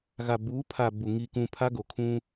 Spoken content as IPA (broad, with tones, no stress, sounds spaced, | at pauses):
ɣ a˨ b uː˨˦ pʰ a˨ b u˨ ŋ i˨ k ũ˨ pʰ a˦ ɡ o˨ kʰ ũ˦